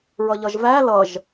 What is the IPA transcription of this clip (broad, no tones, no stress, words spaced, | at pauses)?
ɹʌʎʌʒvæ lʌʒ